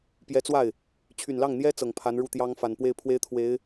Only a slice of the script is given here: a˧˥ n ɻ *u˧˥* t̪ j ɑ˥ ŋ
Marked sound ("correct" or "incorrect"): incorrect